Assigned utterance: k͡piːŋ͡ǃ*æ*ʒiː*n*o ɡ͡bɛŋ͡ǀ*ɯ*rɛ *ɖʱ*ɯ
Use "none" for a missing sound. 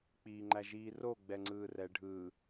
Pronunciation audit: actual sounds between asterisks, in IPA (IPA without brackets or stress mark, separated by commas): æ, r, ɯː, ɖʱ